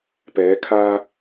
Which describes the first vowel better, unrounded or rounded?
unrounded